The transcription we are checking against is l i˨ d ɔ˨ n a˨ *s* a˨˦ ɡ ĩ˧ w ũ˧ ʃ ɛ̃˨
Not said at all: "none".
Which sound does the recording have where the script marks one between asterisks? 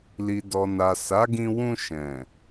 s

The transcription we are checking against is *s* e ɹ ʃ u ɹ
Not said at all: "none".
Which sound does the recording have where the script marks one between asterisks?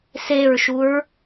s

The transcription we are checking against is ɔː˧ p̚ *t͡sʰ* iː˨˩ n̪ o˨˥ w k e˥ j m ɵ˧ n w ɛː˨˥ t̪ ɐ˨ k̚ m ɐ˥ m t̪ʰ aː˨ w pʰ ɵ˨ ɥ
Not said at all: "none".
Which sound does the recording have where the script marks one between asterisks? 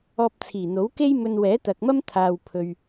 t͡sʰ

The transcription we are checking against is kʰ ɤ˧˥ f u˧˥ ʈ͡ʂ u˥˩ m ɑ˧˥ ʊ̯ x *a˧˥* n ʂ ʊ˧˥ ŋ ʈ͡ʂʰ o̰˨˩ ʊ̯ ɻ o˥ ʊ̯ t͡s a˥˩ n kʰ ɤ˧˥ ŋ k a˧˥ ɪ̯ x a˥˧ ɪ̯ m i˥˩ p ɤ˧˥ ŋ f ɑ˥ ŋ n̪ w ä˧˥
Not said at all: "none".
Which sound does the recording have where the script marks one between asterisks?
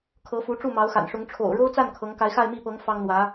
a̰˨˩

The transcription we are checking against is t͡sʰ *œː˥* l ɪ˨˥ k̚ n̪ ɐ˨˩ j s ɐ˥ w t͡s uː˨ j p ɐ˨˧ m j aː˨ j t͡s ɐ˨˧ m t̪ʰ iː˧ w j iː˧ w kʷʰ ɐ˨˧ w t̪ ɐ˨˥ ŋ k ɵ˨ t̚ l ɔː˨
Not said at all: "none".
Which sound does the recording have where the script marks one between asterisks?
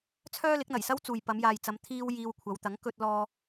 œː˥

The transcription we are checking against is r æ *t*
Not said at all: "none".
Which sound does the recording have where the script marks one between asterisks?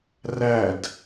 d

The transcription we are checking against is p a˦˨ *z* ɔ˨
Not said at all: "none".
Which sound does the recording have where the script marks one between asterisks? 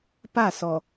s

